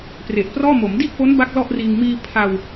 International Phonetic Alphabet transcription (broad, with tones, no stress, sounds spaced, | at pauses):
p r e˨˩ ʔ p r ɔː˥˩ m o˩˦ m d i˥˩ ʔ p o˦˥ n b a˥˩ k̚ l ɔ˥˩ ʔ r iː˧ ŋ m iː˧ pʰ a˧ w